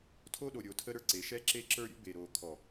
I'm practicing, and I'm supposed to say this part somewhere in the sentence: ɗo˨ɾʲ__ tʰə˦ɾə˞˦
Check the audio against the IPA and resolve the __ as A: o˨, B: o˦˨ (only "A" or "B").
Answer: A